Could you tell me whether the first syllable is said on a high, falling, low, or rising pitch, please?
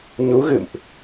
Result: rising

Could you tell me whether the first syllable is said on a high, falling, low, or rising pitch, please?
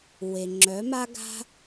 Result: low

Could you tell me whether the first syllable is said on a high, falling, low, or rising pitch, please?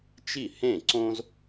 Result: falling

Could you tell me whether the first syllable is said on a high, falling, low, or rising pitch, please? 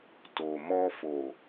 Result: low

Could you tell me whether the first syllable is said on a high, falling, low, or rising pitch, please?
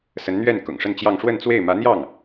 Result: rising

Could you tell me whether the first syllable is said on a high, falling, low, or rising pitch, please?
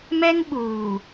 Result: high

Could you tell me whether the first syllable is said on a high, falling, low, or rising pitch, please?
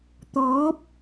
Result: rising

